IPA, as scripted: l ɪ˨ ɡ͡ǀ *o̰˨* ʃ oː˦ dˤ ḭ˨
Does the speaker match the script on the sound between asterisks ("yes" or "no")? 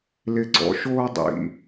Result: no